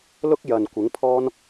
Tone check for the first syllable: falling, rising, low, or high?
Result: high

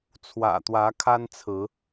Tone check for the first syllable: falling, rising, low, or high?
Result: low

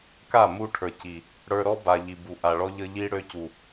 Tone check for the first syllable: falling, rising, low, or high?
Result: falling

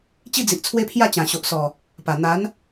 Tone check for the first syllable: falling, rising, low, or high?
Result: falling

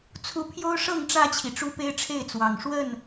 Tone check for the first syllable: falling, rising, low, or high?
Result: rising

